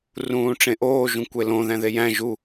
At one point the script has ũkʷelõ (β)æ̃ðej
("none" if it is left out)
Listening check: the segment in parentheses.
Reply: ð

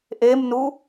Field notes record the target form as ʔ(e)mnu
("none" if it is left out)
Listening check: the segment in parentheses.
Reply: e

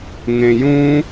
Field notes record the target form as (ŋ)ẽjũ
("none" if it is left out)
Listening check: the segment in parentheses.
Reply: ŋ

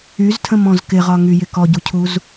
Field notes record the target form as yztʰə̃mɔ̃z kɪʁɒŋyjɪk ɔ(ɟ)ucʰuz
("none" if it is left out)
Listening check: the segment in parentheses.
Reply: ɟ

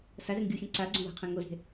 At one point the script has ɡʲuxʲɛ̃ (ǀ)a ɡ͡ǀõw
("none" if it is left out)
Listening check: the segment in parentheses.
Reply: ǀ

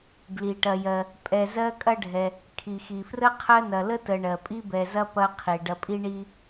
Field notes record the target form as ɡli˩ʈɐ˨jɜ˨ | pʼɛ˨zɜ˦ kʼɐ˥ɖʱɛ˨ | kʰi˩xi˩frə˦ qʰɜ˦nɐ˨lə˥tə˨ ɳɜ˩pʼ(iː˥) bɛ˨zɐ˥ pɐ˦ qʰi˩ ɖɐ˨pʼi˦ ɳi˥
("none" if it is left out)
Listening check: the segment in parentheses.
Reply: i˥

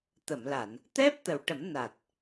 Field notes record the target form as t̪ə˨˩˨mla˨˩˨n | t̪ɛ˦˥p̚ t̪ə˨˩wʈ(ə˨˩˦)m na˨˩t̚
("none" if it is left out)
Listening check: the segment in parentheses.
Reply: ə˨˩˦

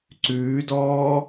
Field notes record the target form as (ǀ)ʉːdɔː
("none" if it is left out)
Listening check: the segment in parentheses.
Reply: ǀ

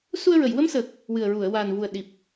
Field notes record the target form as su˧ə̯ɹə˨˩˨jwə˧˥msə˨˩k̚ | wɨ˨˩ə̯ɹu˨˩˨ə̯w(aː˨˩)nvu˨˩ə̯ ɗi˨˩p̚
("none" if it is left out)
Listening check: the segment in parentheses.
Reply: aː˨˩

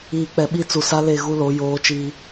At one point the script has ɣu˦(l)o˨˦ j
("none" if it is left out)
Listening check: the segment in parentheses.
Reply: l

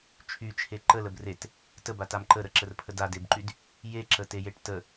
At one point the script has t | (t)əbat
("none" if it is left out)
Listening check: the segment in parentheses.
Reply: t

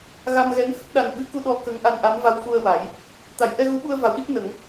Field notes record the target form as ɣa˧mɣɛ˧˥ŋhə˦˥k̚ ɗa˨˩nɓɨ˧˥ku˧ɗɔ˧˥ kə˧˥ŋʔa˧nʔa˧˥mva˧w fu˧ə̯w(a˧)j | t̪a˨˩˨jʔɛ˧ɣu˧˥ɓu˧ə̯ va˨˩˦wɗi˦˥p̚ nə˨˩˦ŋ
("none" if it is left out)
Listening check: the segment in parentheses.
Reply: a˨˩˦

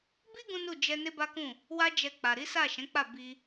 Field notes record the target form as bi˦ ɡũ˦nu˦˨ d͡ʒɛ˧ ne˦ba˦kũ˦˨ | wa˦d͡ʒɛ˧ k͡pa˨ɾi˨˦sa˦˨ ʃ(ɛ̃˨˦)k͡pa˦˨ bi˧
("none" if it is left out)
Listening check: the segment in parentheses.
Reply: ɛ̃˨˦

